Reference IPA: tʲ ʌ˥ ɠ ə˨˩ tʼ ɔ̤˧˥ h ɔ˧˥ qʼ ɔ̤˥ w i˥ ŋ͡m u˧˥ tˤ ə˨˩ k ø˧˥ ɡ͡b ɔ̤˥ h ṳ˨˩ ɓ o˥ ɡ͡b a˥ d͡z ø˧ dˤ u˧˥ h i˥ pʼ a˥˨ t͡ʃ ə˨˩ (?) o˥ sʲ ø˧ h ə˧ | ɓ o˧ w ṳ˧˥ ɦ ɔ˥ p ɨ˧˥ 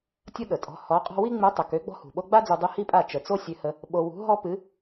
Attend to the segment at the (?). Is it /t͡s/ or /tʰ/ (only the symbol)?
t͡s